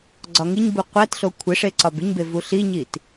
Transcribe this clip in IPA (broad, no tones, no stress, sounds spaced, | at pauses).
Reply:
ɡ͡ǀ ɒ ŋ i ɲ b u qʷ æ t ɬ o kʷʰ e ʂ e ǀ ɒ b i ɲ b e v u ɬ i ɲ i t